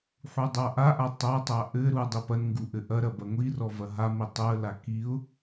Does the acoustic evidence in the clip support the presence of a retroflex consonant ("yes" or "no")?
no